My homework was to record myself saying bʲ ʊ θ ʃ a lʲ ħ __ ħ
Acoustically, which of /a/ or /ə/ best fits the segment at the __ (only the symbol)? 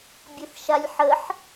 ə